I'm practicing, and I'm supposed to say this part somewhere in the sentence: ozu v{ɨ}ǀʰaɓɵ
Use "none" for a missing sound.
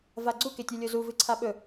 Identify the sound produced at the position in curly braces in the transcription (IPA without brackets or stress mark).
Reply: ɨ